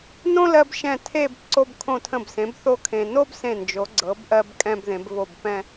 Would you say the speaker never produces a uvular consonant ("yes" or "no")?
yes